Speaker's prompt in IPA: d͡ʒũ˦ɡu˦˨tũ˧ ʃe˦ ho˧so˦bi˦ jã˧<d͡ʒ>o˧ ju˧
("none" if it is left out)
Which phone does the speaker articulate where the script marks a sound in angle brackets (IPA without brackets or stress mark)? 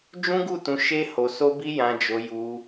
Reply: d͡ʒ